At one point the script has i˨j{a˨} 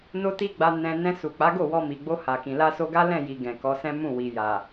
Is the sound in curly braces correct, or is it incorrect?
correct